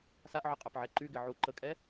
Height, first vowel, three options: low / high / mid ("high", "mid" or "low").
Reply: low